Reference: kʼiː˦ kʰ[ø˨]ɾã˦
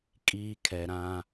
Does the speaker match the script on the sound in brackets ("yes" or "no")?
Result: no